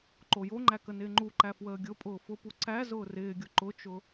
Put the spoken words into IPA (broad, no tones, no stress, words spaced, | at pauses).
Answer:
ǃojoŋ͡ǃæ kənɪːŋ͡ǃuǃæ fwəːɡʲʊpʼʊː fʊpu ǀæ zʊːrɪːɡʲʊ ǃʊt͡ʃʊ